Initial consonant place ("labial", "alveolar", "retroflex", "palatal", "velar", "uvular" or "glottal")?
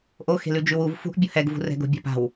glottal